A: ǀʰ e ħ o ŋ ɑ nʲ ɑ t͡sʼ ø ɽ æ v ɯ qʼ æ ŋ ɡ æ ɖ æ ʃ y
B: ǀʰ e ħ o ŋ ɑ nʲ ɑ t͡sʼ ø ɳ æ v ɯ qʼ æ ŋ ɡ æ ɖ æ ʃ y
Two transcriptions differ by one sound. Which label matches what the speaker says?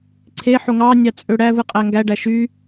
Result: A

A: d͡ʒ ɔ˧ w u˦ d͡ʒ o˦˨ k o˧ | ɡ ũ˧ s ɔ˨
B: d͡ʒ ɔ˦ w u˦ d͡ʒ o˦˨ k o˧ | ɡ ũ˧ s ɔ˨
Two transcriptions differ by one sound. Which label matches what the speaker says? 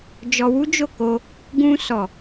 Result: A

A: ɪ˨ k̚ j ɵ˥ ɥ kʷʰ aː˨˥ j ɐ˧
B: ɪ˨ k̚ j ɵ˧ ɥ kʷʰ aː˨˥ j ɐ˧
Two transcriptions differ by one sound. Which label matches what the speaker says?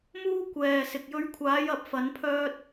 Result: B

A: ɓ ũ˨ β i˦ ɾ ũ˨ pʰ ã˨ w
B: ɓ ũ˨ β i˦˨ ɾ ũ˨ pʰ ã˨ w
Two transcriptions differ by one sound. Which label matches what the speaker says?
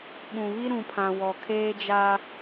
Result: A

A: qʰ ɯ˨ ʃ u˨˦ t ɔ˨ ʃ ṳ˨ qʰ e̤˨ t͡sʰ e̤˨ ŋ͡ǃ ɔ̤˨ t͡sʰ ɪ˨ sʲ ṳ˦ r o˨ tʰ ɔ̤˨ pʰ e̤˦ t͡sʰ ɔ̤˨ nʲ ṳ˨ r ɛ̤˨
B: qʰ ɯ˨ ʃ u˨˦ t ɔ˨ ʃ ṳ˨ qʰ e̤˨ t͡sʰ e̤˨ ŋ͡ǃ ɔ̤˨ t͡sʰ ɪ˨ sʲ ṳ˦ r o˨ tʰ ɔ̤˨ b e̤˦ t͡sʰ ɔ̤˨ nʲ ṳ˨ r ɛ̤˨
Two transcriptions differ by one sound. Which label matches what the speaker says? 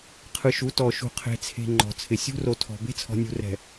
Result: B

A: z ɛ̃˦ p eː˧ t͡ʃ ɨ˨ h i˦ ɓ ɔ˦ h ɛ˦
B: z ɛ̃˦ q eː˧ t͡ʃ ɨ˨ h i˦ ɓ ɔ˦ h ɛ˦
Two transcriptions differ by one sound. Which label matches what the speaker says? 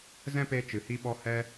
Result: A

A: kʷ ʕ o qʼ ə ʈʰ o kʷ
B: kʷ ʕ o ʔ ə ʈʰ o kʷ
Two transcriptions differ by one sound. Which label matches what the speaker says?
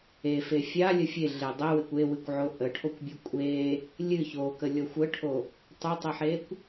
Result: B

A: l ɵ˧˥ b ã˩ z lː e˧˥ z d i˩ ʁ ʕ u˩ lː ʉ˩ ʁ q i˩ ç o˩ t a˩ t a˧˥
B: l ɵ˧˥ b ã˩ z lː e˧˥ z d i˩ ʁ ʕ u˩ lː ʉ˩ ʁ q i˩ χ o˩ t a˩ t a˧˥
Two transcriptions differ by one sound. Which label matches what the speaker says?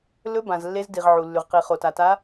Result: B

